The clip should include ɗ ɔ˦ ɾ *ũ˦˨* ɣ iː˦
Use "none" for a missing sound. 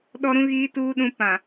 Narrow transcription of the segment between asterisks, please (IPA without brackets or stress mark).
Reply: ũ˦